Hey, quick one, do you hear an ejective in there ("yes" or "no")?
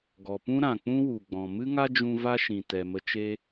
no